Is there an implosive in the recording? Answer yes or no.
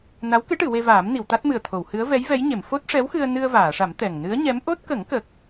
no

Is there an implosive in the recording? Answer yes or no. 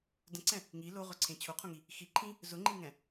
no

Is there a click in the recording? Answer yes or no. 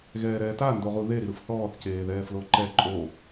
yes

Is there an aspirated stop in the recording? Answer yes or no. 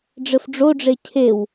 yes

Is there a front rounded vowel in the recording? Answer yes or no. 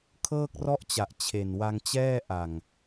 no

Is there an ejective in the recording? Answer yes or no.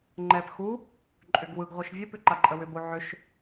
yes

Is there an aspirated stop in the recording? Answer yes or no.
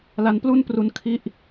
yes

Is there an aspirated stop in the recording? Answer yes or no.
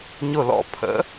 yes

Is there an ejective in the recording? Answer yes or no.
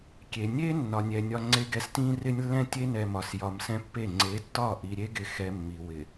no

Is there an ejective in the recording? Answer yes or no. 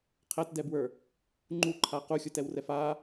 no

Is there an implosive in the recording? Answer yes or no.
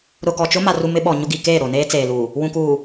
yes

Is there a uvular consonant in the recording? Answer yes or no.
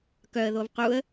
yes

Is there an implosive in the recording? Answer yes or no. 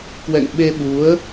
yes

